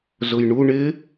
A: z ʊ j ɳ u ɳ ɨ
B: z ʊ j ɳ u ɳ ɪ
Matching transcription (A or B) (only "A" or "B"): B